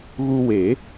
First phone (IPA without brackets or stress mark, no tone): ɣ